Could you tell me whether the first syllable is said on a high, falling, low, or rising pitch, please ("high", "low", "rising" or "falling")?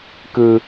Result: high